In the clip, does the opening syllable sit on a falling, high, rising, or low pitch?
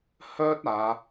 high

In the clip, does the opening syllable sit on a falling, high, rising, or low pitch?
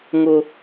high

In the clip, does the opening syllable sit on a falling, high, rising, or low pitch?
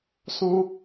high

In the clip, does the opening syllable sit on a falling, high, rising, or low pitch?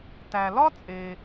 low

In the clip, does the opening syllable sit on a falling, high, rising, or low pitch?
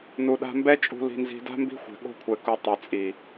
low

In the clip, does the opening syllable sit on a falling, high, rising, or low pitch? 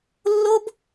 high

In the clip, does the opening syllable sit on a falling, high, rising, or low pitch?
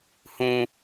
low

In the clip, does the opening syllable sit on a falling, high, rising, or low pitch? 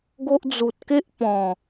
high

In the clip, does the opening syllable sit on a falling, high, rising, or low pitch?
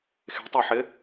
rising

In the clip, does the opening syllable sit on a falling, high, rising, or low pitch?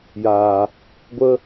low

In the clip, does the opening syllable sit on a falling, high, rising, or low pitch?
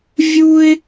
high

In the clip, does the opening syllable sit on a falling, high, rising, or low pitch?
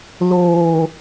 low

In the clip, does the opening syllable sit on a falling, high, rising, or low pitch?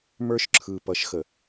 high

